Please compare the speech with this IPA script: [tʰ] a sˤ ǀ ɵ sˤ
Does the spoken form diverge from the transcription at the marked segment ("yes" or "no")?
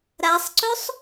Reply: yes